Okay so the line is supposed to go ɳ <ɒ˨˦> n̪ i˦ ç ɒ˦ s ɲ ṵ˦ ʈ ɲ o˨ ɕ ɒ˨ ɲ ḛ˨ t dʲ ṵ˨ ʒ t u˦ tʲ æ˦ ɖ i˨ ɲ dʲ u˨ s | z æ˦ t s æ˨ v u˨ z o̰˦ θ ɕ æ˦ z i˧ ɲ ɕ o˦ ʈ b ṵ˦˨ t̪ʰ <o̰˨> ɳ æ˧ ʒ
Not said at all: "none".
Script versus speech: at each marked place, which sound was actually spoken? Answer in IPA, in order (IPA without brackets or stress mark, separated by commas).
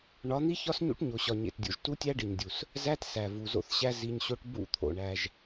ɒ˨˦, o̰˨